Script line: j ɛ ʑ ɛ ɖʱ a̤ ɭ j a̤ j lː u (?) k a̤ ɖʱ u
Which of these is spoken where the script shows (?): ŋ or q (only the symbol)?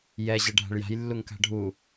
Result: ŋ